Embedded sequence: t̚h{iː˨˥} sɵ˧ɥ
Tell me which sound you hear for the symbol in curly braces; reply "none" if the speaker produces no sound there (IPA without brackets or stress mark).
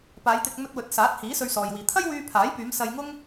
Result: iː˨˥